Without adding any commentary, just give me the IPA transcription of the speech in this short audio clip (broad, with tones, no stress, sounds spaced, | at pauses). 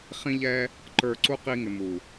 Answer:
χ ĩ˦ ʎ ɛ˦ | ǃ ə˞˧ ǀ u˦ q i˧ ŋ ɪ˨ m u˨